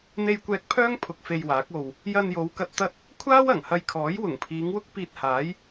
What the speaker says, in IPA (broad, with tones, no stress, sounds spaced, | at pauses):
n̪ e˧ j kʷ ɛː˧ k̚ pʰ œː˥ ŋ pʰ ʊ˧ k̚ f e˧ j w aː˨˥ k̚ o˧ w | j ɐ˧ n j o˨˧ w k ɐ˧ t̚ t̪ ɐ˥ t̚ | kʷʰ aː˥ w ɐ˨˩ ŋ h ɐ˧ j kʰ ɔː˨˥ j w ʊ˨˩ ŋ pʰ iː˨˧ ŋ w ʊ˥ k̚ p iː˧ t̚ h aː˨˥ j